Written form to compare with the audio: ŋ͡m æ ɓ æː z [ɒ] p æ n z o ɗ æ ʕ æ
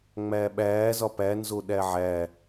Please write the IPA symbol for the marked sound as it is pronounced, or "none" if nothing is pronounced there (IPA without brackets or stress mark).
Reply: ɒ